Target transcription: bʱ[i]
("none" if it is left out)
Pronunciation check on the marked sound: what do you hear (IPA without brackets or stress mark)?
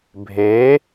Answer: e